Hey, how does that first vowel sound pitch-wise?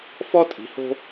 high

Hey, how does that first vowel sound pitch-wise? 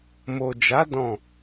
low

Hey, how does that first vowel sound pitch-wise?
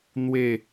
falling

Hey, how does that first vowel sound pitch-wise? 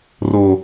low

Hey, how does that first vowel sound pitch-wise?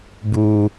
low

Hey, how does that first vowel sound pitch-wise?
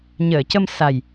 low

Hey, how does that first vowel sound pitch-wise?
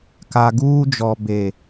low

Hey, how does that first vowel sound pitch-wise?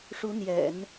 rising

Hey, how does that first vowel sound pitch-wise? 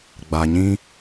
low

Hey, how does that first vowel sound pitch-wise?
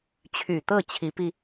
low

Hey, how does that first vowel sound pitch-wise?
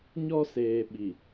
high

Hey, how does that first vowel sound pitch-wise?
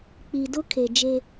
low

